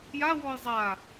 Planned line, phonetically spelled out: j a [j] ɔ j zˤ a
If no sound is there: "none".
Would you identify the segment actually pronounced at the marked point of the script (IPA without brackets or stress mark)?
w